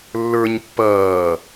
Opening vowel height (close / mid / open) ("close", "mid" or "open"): mid